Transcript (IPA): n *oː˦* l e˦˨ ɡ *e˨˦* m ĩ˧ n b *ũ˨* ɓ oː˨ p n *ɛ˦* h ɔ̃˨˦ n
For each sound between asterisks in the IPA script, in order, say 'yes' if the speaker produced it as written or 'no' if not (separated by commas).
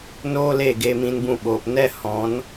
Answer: yes, no, no, yes